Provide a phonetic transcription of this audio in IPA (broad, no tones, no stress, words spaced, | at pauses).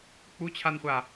k͡put͡ɕʰanχʷa